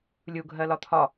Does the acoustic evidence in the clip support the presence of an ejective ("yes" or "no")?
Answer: no